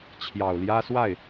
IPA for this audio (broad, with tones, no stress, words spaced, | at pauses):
t͡ɕʰjɑ˨˩ʊ̯ljä˥swa˥˩ɪ̯